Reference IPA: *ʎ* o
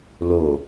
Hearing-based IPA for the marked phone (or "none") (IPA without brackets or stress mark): l